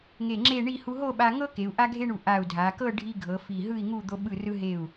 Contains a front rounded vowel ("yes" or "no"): no